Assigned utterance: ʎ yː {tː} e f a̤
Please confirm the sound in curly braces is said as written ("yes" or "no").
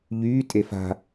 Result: no